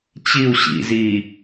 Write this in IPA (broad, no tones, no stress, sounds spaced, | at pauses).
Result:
t͡ɕ i u̯ ɕ ḭ z iː